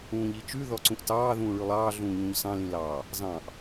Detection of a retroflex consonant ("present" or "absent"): present